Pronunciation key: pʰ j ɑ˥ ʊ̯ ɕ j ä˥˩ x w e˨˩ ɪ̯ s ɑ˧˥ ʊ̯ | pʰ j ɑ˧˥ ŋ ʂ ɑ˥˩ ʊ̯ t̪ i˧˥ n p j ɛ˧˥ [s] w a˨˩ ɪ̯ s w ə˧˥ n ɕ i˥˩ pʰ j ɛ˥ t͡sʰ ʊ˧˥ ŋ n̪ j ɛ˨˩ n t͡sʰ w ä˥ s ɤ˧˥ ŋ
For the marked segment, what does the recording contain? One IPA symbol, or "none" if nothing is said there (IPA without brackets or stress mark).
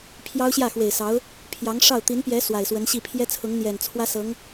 s